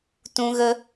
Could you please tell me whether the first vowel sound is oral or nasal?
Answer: nasal